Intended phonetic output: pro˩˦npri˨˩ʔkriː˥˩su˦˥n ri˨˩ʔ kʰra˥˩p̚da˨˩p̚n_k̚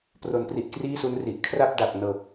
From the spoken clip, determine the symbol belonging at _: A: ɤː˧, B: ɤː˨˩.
B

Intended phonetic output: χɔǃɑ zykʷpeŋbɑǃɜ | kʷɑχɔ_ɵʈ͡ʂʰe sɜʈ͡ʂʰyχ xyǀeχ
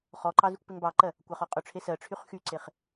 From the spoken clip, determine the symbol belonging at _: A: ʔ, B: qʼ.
B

